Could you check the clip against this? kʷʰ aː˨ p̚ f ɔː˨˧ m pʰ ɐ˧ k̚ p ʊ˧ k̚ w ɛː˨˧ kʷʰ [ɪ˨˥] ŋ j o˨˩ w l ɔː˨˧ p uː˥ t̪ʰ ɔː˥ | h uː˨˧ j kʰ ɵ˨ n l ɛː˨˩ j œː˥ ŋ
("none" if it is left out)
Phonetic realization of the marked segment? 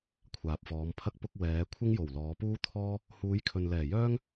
ɪ˥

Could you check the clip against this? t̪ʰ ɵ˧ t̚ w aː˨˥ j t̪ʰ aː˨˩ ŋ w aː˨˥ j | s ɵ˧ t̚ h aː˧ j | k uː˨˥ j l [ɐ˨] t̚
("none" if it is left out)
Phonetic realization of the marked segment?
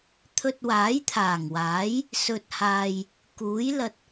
ɐ˧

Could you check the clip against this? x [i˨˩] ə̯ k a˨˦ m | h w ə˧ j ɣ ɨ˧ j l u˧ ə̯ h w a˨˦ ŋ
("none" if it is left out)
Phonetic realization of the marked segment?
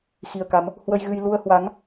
i˨˩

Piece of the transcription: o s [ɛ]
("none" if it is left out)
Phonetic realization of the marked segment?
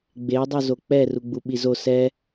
ɛ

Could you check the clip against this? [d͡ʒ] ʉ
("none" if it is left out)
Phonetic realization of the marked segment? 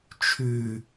t͡ʃʰ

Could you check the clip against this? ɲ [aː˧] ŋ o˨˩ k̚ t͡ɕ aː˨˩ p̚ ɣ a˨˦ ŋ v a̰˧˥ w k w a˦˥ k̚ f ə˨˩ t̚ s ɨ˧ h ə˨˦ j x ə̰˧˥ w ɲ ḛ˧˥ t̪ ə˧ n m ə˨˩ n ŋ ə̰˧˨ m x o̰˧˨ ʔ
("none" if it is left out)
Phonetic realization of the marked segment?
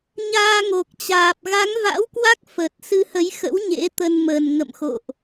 aː˧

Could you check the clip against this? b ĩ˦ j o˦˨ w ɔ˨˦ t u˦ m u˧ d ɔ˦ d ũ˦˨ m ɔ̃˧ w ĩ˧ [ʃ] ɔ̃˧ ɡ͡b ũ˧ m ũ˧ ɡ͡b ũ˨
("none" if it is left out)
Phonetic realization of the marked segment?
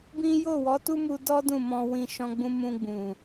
ʃ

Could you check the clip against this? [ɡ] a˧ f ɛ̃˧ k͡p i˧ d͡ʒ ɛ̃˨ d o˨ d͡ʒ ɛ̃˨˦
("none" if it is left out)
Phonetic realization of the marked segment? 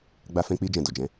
ɡ͡b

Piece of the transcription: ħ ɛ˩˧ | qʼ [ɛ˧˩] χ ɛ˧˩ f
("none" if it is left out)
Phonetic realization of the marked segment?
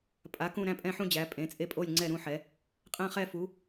ɛ̃˧˩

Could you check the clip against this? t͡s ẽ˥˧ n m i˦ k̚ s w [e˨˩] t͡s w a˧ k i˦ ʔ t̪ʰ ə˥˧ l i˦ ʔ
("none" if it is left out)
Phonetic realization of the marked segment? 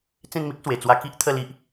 e˨˩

